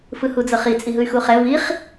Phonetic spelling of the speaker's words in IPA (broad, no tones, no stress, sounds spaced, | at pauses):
f ɯ h u d͡z ɤ χ i t͡sʼ i ɦ ɯ y̯ x u χ ɛ v i χ